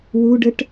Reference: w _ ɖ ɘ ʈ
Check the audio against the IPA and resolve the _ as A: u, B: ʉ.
A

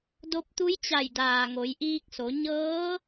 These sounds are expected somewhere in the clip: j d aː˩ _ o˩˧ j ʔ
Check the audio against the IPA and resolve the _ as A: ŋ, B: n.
A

